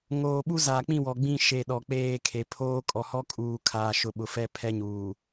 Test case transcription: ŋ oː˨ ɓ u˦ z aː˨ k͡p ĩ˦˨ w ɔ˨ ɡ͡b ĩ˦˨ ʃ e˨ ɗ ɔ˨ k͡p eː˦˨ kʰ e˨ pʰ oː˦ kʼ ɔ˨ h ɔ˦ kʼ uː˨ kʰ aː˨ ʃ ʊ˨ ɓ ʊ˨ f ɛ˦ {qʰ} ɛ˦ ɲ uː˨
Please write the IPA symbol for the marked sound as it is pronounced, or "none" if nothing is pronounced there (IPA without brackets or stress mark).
pʰ